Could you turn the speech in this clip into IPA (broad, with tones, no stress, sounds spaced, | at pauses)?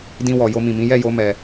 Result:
d ĩ˧ w ɔ˨ j o˧ m ĩ˨ m ĩ˨˦ j ɛ˦˨ j o˨˦ m ɛ˧